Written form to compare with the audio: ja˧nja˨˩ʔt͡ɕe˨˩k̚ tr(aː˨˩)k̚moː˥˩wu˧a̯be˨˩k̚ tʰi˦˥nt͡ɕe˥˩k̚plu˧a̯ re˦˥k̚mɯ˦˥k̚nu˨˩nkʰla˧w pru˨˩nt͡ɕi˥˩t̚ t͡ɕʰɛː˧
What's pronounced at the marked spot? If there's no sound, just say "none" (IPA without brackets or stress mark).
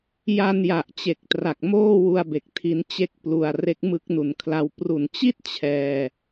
a˨˩